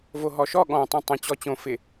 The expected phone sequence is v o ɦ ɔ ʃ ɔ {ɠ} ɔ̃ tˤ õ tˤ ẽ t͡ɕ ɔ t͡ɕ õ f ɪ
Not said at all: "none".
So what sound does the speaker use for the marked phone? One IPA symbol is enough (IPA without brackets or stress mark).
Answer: ɠ